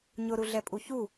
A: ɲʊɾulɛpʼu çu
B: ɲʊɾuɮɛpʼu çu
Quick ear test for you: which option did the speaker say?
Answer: B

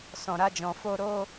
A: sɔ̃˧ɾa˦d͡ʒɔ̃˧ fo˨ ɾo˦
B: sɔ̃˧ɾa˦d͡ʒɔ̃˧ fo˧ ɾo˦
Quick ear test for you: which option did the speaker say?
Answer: B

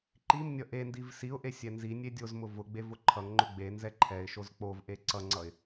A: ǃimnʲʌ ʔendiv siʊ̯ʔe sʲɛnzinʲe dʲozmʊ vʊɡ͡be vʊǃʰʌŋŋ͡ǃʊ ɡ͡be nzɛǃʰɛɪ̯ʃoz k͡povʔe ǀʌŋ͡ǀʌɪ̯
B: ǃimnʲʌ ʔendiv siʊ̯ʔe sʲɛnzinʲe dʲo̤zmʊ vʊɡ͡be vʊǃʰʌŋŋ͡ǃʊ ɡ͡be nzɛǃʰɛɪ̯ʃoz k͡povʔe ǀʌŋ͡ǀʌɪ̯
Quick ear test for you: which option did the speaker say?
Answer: A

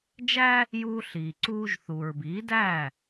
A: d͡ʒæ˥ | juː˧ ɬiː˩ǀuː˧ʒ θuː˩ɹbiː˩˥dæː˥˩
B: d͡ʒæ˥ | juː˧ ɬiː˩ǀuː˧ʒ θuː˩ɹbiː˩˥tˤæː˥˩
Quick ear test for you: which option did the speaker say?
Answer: A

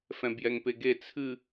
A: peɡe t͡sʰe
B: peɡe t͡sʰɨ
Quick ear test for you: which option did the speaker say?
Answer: B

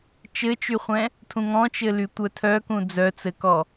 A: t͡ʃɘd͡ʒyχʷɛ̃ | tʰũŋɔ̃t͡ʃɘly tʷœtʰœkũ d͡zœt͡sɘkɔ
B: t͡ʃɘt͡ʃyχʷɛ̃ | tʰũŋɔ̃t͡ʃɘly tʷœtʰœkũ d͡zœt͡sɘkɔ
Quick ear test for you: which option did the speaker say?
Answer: B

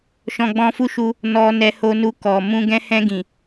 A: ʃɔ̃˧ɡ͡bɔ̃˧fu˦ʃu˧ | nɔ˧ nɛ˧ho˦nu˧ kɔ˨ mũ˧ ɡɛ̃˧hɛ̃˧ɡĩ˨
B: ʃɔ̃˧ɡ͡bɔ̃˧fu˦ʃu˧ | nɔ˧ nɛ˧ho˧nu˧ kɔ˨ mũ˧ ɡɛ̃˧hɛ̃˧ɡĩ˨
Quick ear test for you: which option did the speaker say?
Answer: B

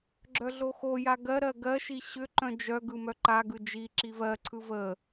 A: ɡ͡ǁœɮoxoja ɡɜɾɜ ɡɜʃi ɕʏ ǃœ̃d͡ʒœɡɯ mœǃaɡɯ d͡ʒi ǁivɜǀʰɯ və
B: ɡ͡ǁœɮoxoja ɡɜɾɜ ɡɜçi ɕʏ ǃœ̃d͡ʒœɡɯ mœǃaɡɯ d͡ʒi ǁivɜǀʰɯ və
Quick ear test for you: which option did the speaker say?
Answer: A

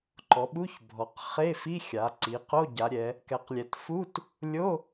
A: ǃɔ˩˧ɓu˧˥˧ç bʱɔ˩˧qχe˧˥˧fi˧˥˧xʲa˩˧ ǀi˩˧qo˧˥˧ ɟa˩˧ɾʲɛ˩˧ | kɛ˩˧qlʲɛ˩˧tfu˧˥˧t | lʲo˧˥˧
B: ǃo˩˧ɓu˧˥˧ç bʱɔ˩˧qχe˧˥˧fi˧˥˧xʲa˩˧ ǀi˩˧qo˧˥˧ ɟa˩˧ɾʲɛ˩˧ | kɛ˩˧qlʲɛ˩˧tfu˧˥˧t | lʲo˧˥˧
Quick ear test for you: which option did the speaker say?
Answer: A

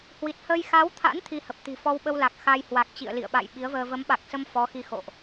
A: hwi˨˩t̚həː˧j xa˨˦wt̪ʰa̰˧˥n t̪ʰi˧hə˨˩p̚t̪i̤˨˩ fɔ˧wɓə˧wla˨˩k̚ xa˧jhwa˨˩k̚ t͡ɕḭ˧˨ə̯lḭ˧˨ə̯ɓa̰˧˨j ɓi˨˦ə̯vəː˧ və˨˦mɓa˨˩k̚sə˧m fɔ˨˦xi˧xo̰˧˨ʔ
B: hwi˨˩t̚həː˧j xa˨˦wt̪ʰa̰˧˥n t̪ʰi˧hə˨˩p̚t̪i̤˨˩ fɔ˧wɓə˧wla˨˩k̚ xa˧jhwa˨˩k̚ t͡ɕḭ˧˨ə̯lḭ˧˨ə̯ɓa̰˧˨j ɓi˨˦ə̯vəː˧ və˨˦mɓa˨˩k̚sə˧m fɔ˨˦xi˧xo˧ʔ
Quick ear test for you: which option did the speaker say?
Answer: A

